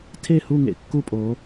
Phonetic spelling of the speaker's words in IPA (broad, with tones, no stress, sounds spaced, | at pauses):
tʰ e˥˨ h u˥˨ ŋ ḛ˥˨ kː u˥˨ pʼ o˨˦